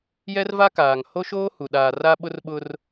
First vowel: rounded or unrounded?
unrounded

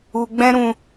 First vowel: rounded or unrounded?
rounded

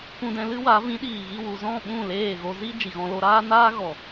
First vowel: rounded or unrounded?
rounded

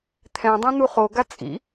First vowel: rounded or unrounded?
unrounded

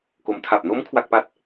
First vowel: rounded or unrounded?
rounded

